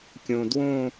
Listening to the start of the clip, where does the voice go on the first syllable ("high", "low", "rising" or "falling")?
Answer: low